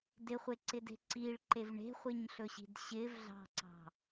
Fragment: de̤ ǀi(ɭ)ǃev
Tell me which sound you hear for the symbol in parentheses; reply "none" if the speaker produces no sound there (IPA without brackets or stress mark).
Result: ɭ